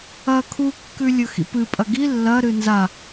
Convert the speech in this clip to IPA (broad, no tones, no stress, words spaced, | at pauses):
ɐ kʰu kːʉlʲɵxḭpɨ pʼɐɡi lːɐɾɨ nza